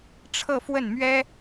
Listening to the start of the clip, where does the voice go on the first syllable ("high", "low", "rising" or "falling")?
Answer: falling